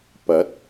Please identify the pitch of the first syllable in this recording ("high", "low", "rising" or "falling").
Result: rising